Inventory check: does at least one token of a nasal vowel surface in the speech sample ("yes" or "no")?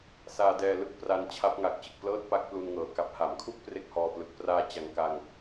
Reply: no